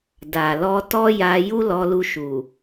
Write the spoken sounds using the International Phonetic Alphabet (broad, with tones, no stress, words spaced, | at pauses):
da˨ lɔ˧tɔ˦ja˧ ju˦lɔ˧lu˧ ʃu˨